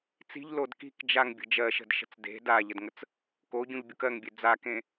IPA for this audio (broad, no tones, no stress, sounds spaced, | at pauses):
t͡s i̤ ʎ l o d k i̤ k d͡ʒ a ŋ bʲ ə̤ d͡ʒ ɜ ʃ ə̤ d ʃ ə̤ t͡s d e̤ d a ʎ ə d ŋ ə t͡s | k o ɟ ũ ʎ bʲ u k ɜ ŋ bʲ e d͡z a k ẽ